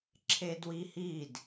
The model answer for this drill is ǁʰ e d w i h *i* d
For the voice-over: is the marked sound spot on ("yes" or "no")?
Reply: yes